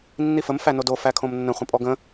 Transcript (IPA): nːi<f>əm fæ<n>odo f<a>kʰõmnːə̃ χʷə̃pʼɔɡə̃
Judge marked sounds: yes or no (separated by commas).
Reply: yes, yes, no